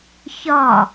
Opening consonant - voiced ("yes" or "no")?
no